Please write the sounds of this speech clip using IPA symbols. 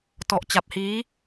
t ɔ˨˩ ʔ t͡ɕ a˨˩ p̚ h iː˦˥

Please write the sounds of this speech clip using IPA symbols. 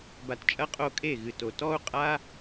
b a˧ t t͡ʃʼ ɐ˦ qʼ o˦˨ kʼ e˦˨ ɣ ɨ˨ t o˨ t ɔ˦ u̯ qʼ a˦

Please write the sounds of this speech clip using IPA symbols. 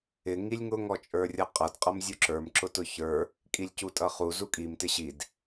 ɪ ŋ i lʲ ŋ ʊ ŋ ɔ t͡ʃʼ ə˞ rʲ ʌ qʼ ʌ d qʼ ʌ m zʲ u ǁ ə˞ m ǁ ʊ t ʊ ç ə˞ | kʼ i lʲ c u tʼ ʌ χ u z u kʼ i m t ɪ ɕ i d

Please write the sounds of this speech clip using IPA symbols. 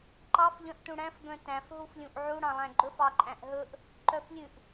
ǃ ɑ f ʎ œ̃ ʔ t ũ ɽ æ̃ f ɡ œ̃ t æ̃ f ɦ u f lʲ ũ ʔ ʕ u ɽ ɑ̃ lˠ æ̃ ɡ͡ǃ ɵ f ɑ ǃʼ æ̃ ʔ ɦ ɵ ʔ | ǃ œ f lʲ ʉ ʔ

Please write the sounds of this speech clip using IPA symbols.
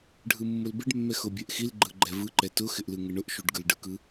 ɖʱ ɯ mː ʊ l b ɪ ɖ mː ɛ x ʊ bʲ ɛ ʔ x i l ɡ͡ǃ ɯ ɡ͡ǃ ɛ v ɯ ǃ ɛ t ʊ x ɪ ʔ l ɯ ŋ ɪ ɳ ʊ ʔ ʃ u ɖ ɡ ɯ l ɖ ɯ k ɯ

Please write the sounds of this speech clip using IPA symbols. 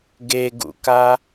ɡ e ɡ ṵ k a

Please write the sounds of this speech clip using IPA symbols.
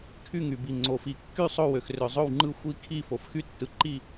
kʰ y˥˩ ŋ y˩ b i˩ ŋ͡ǀ o˩ f i˩ kː y˥˩ sˤ o˥˩ w ø˩ x r ø˩ zˤ o˥˩ w ŋ͡ǃ ɯ˥˩ xʷ i˥˩ kʰ i˥˩ f o˩ f x y˥˩ tː ɯ˩ ǃ i˥˩

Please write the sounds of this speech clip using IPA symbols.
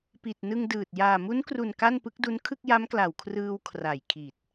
p i˨˩ t̚ n ɯ˧ ŋ d ɯː˨˩ t̚ j aː˨˩ m u˦˥ n k r u˨˩ n k a˥˩ n p ɯ˦˥ k̚ d u˦˥ n kʰ ɯ˥˩ k̚ j a˦˥ m k l a˨˩ w kʰ r ɯː˧ w kʰ r a˨˩ j kʰ i˨˩ t̚

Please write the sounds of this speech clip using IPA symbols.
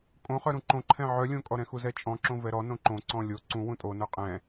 kʼ õ χ œ ɾ ũ ǃ õ ǃʰ ɛ̃ ʕ œ lʲ õ kʼ ɔ ɾ ɛ̃ x u z ɛ t͡ʃʼ ɔ̃ ǁ õ v ɛ ɾ ɔ n õ ǃ õ ǀ ɔ̃ lʲ o ǀ ũ w ũ tʼ o n œ qʼ ɛ̃

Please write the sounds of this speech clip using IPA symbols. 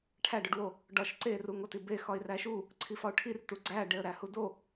ʈʰ æ ɖ o ɖ w o | ɖ ɒ ʃ ǀ e r u ŋ o t i b e x ɒ ɪ̯ r æ ʃ u | ǀʰ i f ɒ ʊ̯ ʈʰ i r t u ɡ͡ǀ æ ɖ e ə̯ ɾ æ h u d o

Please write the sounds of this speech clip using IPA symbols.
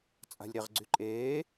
t͡sʼ a̤ lʲ ɾ e ʁ ɡ͡ǀ y ǃʼ eː

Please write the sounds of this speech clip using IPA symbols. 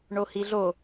ɳ o h i ɮ o

